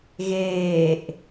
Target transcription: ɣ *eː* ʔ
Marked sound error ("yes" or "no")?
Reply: no